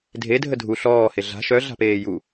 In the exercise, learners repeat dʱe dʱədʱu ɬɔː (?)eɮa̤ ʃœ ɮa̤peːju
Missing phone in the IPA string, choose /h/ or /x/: h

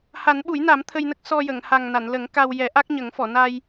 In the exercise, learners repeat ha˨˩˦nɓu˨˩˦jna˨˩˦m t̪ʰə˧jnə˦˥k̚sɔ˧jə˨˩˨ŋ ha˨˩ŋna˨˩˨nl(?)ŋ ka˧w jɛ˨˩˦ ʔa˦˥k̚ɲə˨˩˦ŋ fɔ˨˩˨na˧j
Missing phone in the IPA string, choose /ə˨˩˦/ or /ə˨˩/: ə˨˩˦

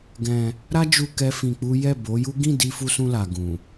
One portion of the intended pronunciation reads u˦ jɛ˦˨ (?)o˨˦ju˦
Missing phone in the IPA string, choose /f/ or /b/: b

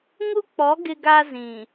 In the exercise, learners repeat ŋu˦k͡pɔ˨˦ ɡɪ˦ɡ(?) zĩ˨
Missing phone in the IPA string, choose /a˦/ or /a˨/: a˦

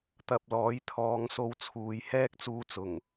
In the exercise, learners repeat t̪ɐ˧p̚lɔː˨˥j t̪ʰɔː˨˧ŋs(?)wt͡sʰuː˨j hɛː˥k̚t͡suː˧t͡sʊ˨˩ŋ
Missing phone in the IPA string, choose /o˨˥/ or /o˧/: o˧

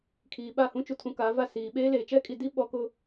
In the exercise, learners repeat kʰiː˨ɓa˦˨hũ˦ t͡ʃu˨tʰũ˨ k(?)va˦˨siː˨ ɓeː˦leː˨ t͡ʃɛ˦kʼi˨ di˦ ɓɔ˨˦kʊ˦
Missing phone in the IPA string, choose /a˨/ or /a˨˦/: a˨˦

